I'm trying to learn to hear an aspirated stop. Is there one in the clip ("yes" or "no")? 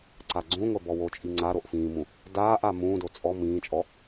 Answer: no